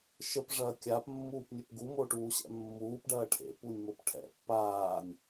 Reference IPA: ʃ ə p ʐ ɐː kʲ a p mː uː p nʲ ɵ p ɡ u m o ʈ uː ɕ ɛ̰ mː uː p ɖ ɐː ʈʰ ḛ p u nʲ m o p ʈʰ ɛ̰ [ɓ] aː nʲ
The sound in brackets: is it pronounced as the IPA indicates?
no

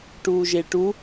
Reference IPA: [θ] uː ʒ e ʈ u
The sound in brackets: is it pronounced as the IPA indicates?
no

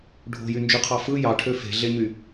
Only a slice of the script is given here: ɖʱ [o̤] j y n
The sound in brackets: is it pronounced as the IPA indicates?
yes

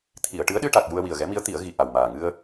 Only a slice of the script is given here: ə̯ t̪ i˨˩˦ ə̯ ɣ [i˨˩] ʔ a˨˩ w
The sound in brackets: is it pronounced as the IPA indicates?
yes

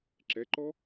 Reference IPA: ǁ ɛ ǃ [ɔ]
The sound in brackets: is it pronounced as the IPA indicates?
yes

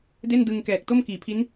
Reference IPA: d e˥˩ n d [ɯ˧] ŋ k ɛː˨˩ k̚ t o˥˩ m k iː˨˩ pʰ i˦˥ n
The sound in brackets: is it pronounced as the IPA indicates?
yes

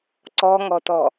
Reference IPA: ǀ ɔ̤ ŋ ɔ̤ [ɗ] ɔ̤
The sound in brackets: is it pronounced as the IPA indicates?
no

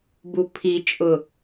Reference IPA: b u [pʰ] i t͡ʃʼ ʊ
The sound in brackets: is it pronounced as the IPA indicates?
yes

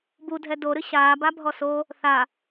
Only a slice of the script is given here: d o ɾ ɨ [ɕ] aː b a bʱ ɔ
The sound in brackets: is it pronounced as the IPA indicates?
yes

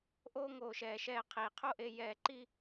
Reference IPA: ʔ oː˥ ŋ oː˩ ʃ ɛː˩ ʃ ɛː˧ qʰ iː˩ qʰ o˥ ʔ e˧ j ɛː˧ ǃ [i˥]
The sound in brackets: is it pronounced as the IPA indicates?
yes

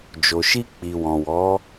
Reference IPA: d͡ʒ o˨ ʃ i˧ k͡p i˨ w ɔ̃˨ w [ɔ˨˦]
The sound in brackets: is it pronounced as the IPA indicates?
yes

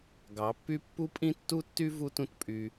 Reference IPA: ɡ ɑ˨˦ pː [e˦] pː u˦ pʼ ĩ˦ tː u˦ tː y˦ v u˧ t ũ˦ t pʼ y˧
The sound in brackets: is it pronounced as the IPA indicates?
no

